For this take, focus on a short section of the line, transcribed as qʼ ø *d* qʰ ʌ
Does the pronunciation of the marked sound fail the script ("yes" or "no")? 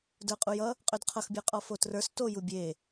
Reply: no